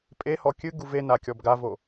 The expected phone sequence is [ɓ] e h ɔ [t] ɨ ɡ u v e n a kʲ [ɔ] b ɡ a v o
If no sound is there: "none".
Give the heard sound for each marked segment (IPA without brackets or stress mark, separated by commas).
pʼ, kʲ, ɔ